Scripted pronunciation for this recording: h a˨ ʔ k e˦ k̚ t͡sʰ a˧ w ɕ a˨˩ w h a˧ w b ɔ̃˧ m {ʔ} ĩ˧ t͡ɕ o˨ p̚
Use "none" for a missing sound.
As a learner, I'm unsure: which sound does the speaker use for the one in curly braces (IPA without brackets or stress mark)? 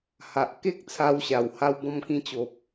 k